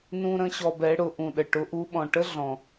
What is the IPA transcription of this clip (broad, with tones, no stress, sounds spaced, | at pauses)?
n ũ˦ ɾ ə̃˦ ɕ ɔ˧ b ɛ˨˦ ɽ ʊ˨˦ ʔ ũ˨ ɗ ə˨ ʈ ʊ˨˦ ʔ u˨˦ ɓ ɔ̃˨ ʈ ə˦ ɮ ɔ̃˨